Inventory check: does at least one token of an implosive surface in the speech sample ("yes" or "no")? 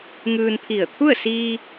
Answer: no